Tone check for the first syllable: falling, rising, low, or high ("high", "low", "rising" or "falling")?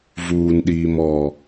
low